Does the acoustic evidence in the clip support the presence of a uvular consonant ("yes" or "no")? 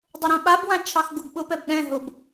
no